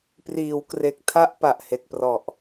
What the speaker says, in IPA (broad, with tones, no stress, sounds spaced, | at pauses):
p r iː˩˦ w k r e˨˩ k̚ tʰ a˦˥ ʔ p a˨˩ ʔ h e˨˩ k̚ p r ɔ˨˩ ʔ